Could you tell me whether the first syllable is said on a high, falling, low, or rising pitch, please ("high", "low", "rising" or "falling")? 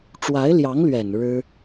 rising